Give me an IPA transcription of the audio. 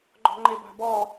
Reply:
ɡ͡ǃ ɔ̤ ŋ͡ǃ e b a̤ b ɔ

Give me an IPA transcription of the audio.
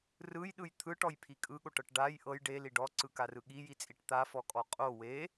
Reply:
r ɯ j ɗ ɯ j t̪ʰ ɯ ʈ ɔ j pʰ i kʼ ɯ ɠ o ʈ ɤ ʈ ɖ a j ʔ ɤ j ɖ e l i ɖ ɔ ǀ ɯ k a r ɯ ɠ i j i t͡sʼ i ʈ t̪ a f ɔ kʼ ɔ qʼ o w e

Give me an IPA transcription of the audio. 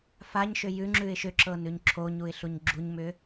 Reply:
f a ɲ ʃ ʏ j ʉ ŋ͡ǁ ʉ ɪ̯ ʃ ʏ ǁ ɤ n ʉ ɲ ǁʰ o ɲ u ɪ̯ ɬ u ɲ ɡ͡ǁ u ɲ m ʏ

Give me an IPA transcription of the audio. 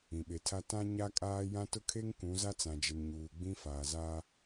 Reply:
ĩ˨ ɓ e˨ tʰ a˦ t ã˦ ɲ a˦ kʼ aː˦ j ã˦ t ʊ˦ kʰ e˦ ŋ k ũ˨˦ z a˦ t͡s ã˨ d͡ʒ ɪ˨ n ɲ uː˨ ɡ͡b ĩ˦ f aː˨ z a˦

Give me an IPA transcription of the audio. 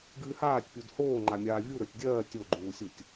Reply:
ɡ ɨː h aː tʲ pʲ u d h oː ŋ͡ǃ a mʲ aː vʲ u ɾ ə˞ tʲ dʲ ɜː tʲ o ɡ͡ǃ uː sʲ u tʲ

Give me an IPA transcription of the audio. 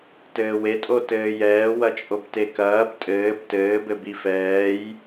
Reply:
t ɘː w e tʼ o t ɘː j ɛː w ɐ t͡ʃʼ o b t e k ɐː b tʼ ɘː b t ɘː b ɘ b i f ɛː j

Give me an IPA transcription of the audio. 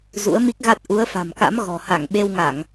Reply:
z ṵ˧˥ ə̯ m i˦˥ k̚ ɣ a˦˥ t̚ ʔ u˨˦ ə̯ f a̤˨˩ m k a̰˧˥ m ɣ ɔ̤˨˩ h a˧˩ ŋ ɓ e˧ w ŋ a˧˩˨ ŋ

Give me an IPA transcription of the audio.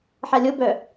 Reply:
ħ a lʲ o b œ

